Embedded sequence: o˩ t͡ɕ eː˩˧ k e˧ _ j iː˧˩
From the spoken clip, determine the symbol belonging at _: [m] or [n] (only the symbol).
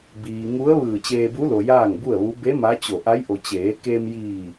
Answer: m